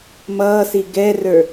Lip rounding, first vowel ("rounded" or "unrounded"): unrounded